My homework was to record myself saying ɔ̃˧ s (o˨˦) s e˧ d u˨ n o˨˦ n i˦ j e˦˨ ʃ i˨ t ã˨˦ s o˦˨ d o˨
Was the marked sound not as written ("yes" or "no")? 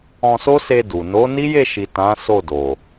yes